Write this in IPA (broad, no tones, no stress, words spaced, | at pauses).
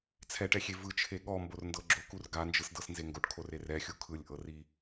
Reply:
t͡sʰɛʈɛxʲe vɯt͡ʃʰe ɠɔmborndɤ ɡ͡ǁokur ɡand͡ʒɯsdɤsnze ŋɡoʈkʰorer ɛxʲu kʰɯlʲʔɤri